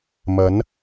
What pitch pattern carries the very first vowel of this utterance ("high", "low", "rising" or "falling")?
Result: rising